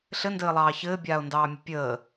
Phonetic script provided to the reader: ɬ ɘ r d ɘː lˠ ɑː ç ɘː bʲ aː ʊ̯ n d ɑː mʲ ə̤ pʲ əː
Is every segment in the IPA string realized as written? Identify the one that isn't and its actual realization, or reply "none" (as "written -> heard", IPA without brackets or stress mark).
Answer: r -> n